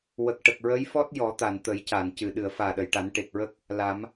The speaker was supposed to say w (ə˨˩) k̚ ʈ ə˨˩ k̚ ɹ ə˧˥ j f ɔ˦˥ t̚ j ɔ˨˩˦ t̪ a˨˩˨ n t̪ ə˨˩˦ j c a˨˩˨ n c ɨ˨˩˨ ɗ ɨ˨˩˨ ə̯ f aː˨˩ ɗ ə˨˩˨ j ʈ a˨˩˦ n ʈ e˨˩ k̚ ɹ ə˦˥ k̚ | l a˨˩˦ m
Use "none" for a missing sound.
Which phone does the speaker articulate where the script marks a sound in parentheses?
ə˨˩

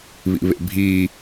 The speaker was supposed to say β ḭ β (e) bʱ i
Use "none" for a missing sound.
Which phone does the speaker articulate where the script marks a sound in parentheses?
ḛ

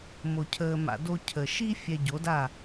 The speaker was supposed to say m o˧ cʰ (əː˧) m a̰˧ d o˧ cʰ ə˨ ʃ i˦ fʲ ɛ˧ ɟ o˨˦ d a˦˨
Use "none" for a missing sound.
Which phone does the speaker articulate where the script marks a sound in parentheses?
əː˧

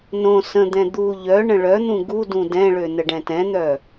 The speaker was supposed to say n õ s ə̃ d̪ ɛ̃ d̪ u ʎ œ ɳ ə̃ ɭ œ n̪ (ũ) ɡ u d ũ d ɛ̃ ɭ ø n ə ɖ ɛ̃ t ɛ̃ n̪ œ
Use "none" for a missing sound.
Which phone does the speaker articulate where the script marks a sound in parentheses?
ũ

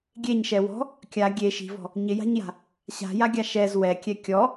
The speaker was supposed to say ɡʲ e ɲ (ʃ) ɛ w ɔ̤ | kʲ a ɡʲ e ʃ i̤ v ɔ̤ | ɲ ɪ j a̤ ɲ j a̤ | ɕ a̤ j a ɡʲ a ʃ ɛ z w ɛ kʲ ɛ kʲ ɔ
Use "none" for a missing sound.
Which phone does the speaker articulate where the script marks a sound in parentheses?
ʃ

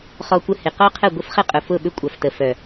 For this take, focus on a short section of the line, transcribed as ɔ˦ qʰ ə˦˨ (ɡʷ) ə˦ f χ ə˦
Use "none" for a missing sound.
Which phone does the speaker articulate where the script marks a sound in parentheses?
ɡʷ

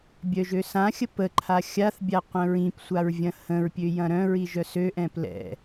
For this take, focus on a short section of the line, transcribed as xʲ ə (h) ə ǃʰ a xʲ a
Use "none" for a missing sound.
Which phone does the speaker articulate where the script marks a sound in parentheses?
p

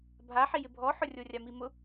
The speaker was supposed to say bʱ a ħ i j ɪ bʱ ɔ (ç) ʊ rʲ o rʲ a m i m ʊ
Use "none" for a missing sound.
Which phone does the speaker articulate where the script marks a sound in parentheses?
ħ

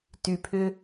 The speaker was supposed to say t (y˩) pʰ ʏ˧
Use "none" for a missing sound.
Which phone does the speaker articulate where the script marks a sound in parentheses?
y˩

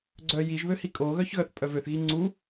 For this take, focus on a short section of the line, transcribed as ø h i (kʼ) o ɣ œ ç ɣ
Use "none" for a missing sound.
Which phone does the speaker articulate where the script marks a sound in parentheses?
kʼ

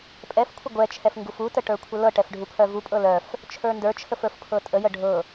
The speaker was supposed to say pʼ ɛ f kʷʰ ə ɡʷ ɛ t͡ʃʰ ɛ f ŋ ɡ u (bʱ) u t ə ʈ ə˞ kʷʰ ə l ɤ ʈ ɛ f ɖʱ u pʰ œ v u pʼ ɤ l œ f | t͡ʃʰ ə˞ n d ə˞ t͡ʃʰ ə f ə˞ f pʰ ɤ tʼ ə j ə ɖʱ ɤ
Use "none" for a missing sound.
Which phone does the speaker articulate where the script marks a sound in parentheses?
f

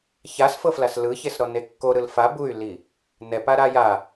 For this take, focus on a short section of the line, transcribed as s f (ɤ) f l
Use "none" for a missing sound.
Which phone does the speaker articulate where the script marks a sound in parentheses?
ɤ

